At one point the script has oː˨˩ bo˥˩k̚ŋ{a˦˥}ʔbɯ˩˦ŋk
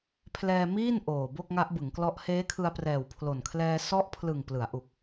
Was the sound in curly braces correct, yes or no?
yes